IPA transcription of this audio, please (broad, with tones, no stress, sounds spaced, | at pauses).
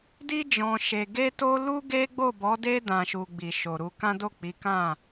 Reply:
d i˧ d͡ʒ ɔ̃˨ ʃ e˨ ɡ e˧ t o˧ l u˦ ɡ e˦ ɡ͡b o˦˨ b ɔ˨˦ d e˧ d ã˨ ʃ u˨ ɡ͡b i˨ ʃ o˨ ɾ u˨˦ k ã˦ d o˦˨ k͡p i˨˦ k ã˦˨